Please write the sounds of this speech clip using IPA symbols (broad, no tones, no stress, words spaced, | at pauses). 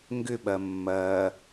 ŋɡʏɓɐ mːɐ